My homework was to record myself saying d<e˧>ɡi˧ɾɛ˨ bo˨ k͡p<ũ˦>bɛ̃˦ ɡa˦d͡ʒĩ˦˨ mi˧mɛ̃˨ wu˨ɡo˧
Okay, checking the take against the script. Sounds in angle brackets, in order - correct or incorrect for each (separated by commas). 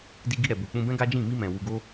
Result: incorrect, incorrect